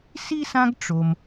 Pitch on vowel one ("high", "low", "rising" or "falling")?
high